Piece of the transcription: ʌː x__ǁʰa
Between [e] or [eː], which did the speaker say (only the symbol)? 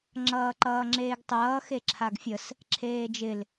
e